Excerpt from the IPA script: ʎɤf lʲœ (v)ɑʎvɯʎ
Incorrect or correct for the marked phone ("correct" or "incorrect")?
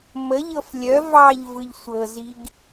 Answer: correct